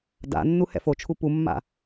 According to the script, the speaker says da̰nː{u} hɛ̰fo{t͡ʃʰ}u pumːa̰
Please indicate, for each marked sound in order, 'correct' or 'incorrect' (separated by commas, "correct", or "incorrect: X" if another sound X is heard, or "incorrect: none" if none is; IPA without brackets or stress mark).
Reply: correct, correct